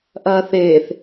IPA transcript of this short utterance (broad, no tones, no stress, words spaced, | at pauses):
ʔɐːθeːθ